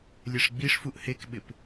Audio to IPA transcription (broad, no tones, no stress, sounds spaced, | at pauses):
lʲ ɛ ʂ ɡ͡b i ʂ f u ʔ h e k ɓ ɪ p